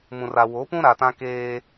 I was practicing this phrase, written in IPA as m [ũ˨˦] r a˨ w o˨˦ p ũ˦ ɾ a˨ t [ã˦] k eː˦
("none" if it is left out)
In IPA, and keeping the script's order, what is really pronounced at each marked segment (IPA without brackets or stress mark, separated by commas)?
ũ˨, ã˦